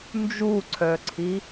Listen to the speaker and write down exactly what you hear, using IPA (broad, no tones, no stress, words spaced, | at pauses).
nd͡ʒuǀʰœǀʰi